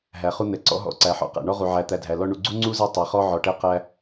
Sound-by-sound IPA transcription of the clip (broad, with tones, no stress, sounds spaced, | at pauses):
ɦ æ˩ χ u˦ n̪ ɛ˩ ǀ ɔ̰˦ ɦ ɔ̰˨ ǀ æ˩ ħ ɔ̰˨ q æ̰˩ ɳ ɔ˦ ʁ u˩ ʕ æ˨ t̪ æ˨ dʱ æ˩ l ɔ˦ ɳ u˨ ɡ͡ǀ u˥ ŋ͡ǀ u˥ z ɛ˦ tˤ ɛ˩ χ ɔ˦ ʕ ɔ˨ ʈ ɛ˥ q æ˥